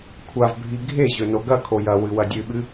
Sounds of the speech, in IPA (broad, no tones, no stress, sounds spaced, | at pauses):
kʷʰ a v bʱ i ɡʱ e ʑ ɵ n o ɡ ɐ kʰ o j ɐ w ɨ w ɐ dʲ ɨ ɓ ɨ